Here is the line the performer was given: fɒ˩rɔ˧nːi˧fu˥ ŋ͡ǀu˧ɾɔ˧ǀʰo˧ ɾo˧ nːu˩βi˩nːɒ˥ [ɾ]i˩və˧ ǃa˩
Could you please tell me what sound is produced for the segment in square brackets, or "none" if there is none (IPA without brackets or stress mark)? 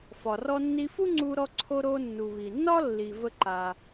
lː